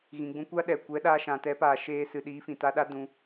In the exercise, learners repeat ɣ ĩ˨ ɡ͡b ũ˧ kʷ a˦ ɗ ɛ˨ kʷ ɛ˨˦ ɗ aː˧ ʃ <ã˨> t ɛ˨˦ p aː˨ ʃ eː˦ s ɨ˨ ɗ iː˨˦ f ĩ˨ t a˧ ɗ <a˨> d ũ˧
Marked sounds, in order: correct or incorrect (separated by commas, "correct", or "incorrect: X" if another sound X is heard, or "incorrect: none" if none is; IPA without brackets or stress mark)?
correct, incorrect: a˦